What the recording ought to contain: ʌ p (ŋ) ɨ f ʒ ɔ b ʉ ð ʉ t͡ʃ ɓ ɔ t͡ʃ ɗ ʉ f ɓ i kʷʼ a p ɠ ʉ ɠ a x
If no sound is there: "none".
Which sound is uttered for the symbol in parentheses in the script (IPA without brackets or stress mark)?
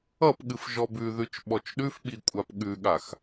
ɠ